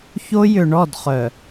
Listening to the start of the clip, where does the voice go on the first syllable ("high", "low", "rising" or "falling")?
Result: high